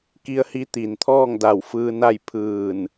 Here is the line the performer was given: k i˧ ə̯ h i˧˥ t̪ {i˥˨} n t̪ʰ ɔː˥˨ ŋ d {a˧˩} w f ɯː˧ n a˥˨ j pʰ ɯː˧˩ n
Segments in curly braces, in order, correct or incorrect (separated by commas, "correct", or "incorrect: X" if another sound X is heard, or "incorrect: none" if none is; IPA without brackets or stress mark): incorrect: i˩, correct